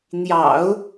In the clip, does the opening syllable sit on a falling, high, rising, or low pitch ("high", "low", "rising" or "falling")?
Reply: low